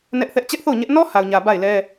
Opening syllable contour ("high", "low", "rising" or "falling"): high